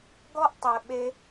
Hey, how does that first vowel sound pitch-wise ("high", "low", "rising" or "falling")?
high